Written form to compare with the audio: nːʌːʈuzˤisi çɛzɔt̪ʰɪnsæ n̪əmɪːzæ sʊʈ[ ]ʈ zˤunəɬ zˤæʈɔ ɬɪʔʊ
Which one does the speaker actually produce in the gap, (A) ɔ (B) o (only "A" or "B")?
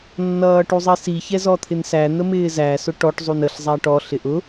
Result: A